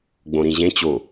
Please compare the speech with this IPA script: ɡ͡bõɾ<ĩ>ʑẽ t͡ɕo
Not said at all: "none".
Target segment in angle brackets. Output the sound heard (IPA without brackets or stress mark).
ĩ